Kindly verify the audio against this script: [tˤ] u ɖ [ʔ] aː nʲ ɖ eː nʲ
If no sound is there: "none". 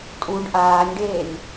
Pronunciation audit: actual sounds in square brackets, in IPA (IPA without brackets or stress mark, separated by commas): tʼ, ʔ